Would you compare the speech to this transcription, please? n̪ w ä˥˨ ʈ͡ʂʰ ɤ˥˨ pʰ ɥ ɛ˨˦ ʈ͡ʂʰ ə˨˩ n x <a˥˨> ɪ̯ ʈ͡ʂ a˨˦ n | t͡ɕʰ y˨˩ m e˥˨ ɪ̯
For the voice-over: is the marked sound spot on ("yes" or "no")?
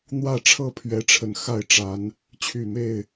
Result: yes